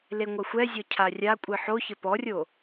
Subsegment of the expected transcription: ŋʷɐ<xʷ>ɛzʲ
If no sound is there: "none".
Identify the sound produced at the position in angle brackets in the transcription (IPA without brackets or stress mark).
xʷ